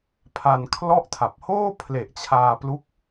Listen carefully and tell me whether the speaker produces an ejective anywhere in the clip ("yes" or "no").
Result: no